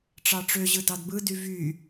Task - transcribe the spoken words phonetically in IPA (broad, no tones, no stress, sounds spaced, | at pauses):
ʈ͡ʂ ɑ ʈ͡ʂ ø ʑ ɯ d ɑ d b ɯ d y v y